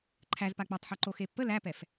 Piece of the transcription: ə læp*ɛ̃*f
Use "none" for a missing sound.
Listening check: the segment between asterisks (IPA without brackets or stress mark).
ɛ